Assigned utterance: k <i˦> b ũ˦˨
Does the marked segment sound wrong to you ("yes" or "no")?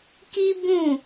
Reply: no